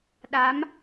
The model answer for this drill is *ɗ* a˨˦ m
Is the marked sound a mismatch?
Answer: no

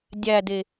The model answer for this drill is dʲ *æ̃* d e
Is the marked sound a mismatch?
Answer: yes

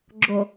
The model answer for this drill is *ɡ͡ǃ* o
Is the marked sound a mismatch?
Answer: yes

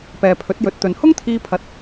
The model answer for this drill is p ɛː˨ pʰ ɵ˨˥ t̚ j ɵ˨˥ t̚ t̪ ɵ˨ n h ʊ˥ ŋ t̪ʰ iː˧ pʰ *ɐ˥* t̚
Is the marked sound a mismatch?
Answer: yes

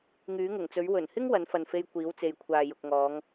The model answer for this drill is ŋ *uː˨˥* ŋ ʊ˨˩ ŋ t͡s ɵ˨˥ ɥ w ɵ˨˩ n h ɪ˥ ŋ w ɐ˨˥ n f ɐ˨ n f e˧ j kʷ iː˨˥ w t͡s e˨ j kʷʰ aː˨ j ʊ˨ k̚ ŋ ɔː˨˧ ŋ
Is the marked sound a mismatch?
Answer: yes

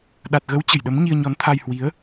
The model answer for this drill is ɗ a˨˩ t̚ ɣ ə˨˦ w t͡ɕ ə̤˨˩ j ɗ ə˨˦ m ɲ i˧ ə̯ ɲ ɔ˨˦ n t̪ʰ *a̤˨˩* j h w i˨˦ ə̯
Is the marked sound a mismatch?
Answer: yes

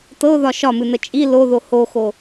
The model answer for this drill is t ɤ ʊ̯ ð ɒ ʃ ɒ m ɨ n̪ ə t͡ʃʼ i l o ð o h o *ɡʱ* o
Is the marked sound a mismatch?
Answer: yes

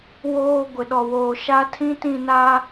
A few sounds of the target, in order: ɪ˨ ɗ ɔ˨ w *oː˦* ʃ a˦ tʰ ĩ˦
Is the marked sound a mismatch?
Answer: yes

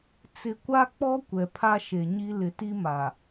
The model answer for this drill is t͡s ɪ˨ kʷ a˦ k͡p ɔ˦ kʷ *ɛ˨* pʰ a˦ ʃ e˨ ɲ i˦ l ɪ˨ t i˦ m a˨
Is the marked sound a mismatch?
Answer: no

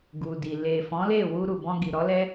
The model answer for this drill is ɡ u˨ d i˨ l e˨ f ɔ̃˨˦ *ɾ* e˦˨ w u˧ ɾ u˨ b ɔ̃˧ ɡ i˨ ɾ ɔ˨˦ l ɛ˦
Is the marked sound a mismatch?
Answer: yes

